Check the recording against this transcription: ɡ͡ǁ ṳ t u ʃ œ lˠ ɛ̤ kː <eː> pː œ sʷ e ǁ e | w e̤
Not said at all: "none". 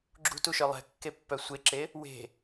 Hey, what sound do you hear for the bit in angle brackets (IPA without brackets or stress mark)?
e